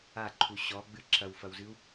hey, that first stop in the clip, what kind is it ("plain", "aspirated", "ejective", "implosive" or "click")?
click